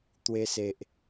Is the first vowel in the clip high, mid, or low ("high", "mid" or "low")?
mid